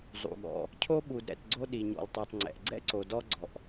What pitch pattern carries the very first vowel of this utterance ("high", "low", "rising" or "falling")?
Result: low